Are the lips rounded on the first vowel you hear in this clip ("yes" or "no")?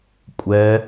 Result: no